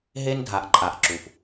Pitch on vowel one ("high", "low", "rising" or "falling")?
high